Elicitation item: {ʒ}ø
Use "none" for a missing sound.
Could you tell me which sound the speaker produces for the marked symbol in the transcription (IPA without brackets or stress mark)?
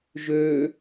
ʒ